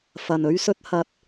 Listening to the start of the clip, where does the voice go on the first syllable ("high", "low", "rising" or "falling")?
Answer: low